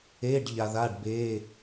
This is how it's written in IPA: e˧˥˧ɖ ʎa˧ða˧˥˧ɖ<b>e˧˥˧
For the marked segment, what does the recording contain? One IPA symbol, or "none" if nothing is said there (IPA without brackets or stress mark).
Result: b